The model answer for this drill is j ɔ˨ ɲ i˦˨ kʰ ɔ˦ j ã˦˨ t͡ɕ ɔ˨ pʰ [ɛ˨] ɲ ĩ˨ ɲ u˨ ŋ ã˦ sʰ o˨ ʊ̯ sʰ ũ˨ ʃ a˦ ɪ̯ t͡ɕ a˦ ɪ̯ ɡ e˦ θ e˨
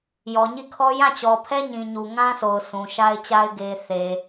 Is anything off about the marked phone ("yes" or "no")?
yes